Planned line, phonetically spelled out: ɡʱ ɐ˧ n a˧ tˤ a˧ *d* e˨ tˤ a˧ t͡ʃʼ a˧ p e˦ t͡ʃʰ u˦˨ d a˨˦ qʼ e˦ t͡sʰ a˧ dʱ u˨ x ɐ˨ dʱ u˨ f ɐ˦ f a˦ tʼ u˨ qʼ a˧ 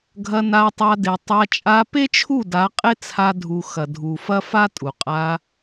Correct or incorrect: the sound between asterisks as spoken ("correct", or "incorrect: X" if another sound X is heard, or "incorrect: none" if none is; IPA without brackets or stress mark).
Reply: correct